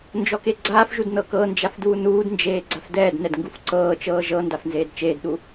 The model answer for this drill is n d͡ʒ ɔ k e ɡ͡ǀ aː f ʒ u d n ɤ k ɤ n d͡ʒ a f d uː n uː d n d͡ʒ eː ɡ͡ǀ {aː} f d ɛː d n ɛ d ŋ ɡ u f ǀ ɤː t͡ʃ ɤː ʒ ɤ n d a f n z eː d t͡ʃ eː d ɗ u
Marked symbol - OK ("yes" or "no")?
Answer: no